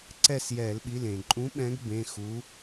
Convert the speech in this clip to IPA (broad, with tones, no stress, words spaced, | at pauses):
ǀɛ˦˨s jɛ˧˩˧lɓi˩˧˩lẽ˩ ǃʼũ˨˦ɓɛ̃˨˦ɡ bẽ˩˧˩xu˨˦